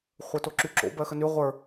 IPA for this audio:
χʷ ə˞ t o ǁ y ǁ o̰ b ɜ x ə n y ʁʷ ə˞

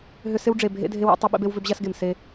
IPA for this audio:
ɦ ʏ˦ s ɪ˦ w ɖ͡ʐ e˨ bʱ ḛ˦ dʱ e˦ w a̰˦ tˤ ɐ˦ ɓ ḛ˦ b e˦ w v ʏ˦ b ʑ a˦ s ɡ e˨ m s e˦

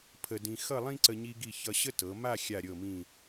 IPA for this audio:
pʰ ə˧ d ĩ˧ x ʌ˥˧ lˠ ĩ˥ ǀ ə˧ ɲ i˧ ɡ i˧˩ ç ʌ˧ ɕ ə˥ t ɤ˩˧ m a˥˧ xʲ a˧˩ ɾʲ ɤ˧˩ m ĩ˧˩

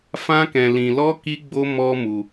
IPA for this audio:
f ã˦ k ɛ̃˧ l ĩ˧ l ɔ˦ k i˦ ɡ͡b o˦ m ɔ˦ m u˧

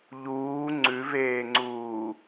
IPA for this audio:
ʎ uː ŋ͡ǀ ʉ v eː ŋ͡ǀ uː

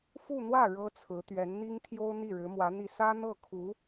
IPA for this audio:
f u˥˧ n̪ w ä˥˩ ɻ ɤ˥ t͡sʰ ɹ̩˧˥ t̪ ɥ ɛ˧˥ n n̪ i˥ ŋ t̪ʰ j o˥ ʊ̯ n̪ i˥˩ ɻ ɻ̩˧˥ m w ä˧˥ n̪ i˥˩ s ä˥ n̪ ɤ˥˩ kʰ u˧˥

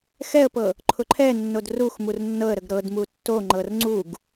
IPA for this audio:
x ɛ ə̯ p ɤ | ǃʰ ʊ ǃʰ ɛ nː o d r u x m u r nː ɤ ə̯ ɾ ə ɡ ɾ ɤ d m u tː o ŋ͡ǃ ɤ r ŋ͡ǀ u ɡ

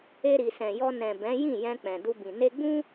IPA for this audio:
e˧ ɾ i˨ s ɛ̃˨ j ɔ˧ n ɛ̃˨ b ɛ̃˨˦ j ĩ˦˨ j ɛ̃˧ k͡p ɛ̃˨ d u˧ b ĩ˨ n e˧ ɡ͡b ũ˦

